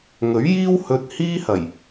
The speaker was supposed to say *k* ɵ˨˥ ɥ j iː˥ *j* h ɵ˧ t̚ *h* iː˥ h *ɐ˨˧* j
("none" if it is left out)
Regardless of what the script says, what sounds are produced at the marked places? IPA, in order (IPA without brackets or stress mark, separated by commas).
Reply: ŋ, w, h, ɐ˨˩